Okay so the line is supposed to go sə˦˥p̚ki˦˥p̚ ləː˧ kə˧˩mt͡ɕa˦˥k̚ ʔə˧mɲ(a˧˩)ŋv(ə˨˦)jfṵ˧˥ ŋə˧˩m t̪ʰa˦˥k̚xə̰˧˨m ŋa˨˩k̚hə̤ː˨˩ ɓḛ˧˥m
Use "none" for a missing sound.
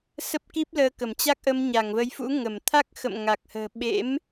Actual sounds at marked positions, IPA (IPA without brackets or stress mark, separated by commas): a˧˩, ə˨˦